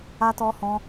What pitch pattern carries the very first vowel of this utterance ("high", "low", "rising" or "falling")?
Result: high